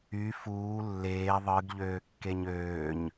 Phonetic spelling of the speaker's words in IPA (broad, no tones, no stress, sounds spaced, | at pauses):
y f uː lː eː ðˤ ɯ ɡ ʎ øː kː e ɲ øː ɲ